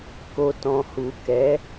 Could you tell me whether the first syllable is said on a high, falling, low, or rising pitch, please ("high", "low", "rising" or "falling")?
low